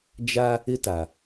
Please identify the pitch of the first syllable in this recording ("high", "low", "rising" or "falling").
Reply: high